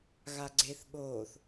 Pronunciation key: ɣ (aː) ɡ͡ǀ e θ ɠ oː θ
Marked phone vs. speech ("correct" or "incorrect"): incorrect